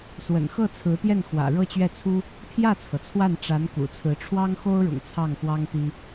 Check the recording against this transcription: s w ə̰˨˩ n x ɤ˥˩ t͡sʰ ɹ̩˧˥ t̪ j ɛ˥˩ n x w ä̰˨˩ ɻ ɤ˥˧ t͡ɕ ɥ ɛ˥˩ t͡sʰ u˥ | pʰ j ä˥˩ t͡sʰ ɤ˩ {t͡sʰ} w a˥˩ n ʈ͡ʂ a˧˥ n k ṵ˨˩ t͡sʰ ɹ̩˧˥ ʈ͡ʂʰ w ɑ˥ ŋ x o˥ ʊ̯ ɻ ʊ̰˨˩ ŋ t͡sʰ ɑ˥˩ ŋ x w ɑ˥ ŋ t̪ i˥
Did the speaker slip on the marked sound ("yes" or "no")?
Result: no